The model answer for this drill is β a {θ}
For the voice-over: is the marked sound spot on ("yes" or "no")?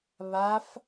no